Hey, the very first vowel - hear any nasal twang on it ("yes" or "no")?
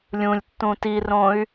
yes